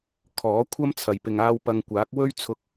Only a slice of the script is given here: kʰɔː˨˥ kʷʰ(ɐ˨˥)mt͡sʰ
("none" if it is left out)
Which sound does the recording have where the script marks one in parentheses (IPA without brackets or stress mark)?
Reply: ɐ˥